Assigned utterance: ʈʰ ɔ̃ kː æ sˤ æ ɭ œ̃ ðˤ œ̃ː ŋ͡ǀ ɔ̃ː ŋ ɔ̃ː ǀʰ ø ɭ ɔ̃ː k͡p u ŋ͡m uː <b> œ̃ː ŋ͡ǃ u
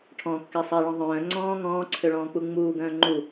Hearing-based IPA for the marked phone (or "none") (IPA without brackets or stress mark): ɡ